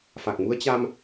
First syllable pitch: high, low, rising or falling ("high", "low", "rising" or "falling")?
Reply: low